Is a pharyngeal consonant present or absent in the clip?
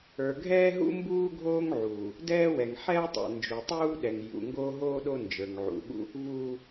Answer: present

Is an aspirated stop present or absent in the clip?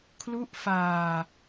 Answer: present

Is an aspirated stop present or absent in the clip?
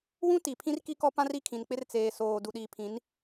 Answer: present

